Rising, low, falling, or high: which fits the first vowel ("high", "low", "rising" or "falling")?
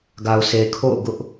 low